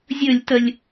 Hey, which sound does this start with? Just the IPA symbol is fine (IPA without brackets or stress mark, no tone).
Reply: zʲ